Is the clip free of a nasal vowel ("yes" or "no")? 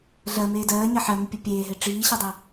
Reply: yes